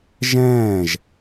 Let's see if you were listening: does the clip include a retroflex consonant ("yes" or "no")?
no